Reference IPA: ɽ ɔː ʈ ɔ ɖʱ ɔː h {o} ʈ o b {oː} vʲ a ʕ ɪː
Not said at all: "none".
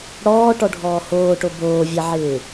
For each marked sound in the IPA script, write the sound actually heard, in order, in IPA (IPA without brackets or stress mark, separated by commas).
oː, oː